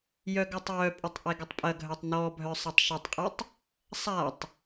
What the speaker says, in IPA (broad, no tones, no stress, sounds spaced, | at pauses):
j œ ɡ œ tˤ j œ pʼ ə tˤ ʔ ɛ ɡ ə tˤ pʼ ɐ ɡʱ œ tˤ n ɔ bʱ œ sˤ ɐ tˤ ʃ ɐ tˤ qʼ i tˤ | sˤ a tˤ